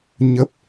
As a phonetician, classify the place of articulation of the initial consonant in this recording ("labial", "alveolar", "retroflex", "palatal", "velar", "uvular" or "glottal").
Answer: palatal